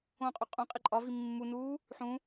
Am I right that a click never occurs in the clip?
no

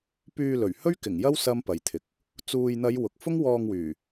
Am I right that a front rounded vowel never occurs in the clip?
no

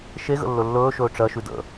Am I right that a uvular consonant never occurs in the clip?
yes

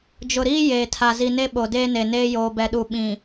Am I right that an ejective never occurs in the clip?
yes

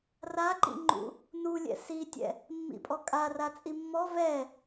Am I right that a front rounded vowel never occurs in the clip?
yes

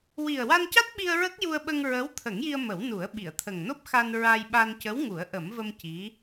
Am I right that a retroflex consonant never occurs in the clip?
yes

